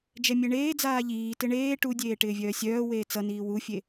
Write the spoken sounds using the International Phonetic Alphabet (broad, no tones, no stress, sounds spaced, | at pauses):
d͡ʒ ɛ mʲ e ɳ eː d͡z aː ʎ iː t ɪ ɳ eː ʈ u dʲ eː ʈ ɪː vʲ œː sʲ œː w eː t͡s ʌ n iː w u fʲ e